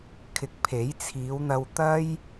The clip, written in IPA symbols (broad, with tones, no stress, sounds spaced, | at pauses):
kʰ ɪ˨ k̚ pʰ e˨˥ j t͡sʰ iː˨˧ w n̪ ɐ˧ w t̪ ɐ˥ j